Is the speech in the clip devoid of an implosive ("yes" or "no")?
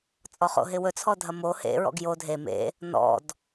yes